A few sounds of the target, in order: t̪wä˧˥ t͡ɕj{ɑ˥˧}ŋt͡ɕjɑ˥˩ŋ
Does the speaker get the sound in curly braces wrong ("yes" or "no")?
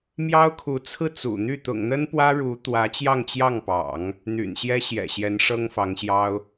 no